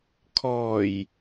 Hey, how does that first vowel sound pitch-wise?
low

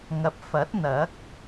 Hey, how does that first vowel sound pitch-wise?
rising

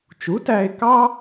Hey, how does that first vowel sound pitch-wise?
rising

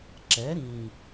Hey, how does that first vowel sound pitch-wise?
rising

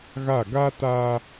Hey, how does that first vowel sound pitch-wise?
falling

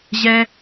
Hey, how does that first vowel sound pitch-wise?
high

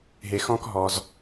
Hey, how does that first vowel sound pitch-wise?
low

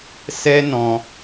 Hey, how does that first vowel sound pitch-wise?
high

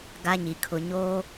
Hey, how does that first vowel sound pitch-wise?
high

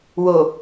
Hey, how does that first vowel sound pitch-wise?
low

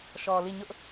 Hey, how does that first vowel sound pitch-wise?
low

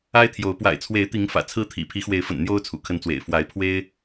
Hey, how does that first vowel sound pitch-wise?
high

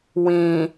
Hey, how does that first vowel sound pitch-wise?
low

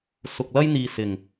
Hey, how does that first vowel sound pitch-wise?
low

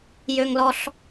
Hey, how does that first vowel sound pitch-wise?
high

